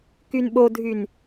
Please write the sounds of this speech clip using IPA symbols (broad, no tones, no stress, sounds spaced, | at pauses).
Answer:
k y n ɓ o dʱ y n